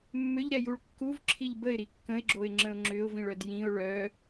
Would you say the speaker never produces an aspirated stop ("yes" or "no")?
no